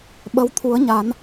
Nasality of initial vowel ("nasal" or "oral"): oral